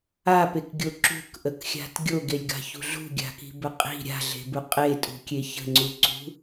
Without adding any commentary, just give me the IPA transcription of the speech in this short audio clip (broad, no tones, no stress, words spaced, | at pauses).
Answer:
apekɡʲo ǁṳkʔəkxʲa̤t ɡʲoɡelʲɡa̤çṳ ɮṳɡʲa̤ki̤bə qʼi̤ ɾʲa̤ɮe̤bu qʼetʼṳkʲe çə̤ŋ͡ǀuǀṳ